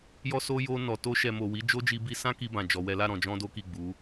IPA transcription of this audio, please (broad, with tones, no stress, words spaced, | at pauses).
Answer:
jɔ˦so˦ jo˧nɔ˨ to˧ʃɛ˨ mo˨ wi˨˦d͡ʒo˦d͡ʒi˧ bi˧sã˦ ki˧bã˨ d͡ʒɔ˧wɛ˦ la˦˨ɾɔ̃˨d͡ʒɔ̃˧ do˦ki˦˨ɡ͡bu˨˦